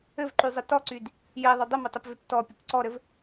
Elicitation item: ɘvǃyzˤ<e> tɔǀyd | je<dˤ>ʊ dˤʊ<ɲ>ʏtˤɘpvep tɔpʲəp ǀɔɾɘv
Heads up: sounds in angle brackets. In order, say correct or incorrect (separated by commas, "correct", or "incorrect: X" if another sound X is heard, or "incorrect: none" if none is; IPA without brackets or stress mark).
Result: incorrect: ɘ, incorrect: ðˤ, incorrect: m